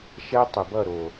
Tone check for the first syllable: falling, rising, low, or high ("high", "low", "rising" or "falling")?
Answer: high